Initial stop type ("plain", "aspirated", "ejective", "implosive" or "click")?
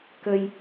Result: plain